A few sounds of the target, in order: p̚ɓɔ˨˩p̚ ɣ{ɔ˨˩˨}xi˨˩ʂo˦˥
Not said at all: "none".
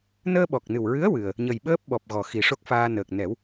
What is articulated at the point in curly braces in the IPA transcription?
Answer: ɔ˨˩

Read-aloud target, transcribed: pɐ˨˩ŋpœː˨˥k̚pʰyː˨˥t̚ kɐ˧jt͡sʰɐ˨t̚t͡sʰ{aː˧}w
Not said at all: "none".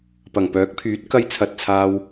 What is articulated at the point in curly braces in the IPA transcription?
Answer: aː˧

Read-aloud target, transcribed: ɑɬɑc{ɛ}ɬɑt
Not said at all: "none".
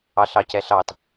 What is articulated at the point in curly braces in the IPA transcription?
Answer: ɛ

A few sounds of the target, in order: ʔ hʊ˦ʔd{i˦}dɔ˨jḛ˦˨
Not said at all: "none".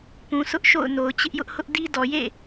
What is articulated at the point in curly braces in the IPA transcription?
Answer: i˦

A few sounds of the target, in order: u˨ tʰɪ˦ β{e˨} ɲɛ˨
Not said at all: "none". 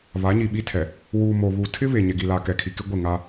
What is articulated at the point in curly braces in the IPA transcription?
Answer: e˨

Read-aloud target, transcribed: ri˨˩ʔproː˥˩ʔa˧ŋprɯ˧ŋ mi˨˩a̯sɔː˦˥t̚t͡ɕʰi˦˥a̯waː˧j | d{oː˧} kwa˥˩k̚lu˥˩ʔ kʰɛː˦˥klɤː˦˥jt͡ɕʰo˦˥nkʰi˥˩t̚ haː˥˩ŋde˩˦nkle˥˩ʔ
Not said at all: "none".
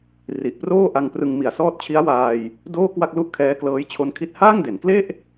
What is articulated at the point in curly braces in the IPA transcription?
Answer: oː˥˩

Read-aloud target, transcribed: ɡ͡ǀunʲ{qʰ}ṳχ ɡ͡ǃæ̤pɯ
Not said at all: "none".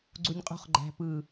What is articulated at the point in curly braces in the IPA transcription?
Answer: qʼ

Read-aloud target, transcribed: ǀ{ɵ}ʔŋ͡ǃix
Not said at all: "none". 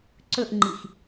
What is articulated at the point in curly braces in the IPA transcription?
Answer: ɵ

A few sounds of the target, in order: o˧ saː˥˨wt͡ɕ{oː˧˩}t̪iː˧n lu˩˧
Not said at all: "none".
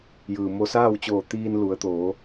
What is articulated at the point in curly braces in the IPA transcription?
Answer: oː˧˩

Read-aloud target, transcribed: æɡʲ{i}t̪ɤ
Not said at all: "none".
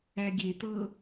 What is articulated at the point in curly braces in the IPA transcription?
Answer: e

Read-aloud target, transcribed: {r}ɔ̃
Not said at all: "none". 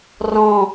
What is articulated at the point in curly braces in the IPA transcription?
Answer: r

